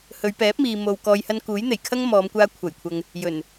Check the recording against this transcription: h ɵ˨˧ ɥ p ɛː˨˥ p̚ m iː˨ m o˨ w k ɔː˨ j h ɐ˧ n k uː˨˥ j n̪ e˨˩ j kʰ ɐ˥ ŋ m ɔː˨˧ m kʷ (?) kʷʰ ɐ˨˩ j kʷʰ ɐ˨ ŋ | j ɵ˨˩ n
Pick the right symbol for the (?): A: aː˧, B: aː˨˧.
A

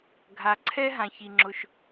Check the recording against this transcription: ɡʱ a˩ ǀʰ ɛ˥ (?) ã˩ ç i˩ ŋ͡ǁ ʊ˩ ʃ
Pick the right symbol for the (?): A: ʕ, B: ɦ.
B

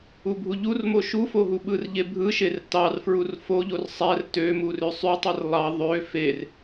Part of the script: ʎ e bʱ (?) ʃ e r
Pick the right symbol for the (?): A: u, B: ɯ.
B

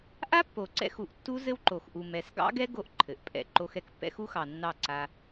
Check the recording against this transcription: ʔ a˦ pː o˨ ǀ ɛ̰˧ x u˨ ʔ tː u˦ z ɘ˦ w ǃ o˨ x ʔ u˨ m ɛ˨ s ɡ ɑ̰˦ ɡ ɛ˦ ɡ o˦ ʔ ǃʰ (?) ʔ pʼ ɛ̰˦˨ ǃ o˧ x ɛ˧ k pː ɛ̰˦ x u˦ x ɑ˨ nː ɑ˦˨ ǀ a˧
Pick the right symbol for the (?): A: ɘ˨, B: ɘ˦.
A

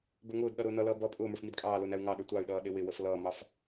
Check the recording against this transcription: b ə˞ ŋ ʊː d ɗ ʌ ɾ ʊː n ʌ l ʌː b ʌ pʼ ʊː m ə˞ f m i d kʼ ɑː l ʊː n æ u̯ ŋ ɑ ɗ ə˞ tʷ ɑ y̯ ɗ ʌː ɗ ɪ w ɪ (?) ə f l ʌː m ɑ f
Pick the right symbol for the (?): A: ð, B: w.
B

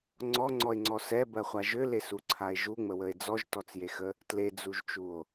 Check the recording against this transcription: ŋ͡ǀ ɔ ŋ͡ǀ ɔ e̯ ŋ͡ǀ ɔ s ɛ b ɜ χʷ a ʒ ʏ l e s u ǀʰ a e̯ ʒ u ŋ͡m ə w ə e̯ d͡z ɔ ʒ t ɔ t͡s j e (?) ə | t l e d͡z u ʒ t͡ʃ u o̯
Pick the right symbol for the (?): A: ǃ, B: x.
B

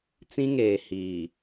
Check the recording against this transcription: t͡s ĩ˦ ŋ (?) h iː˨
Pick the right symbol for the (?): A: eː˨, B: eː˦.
A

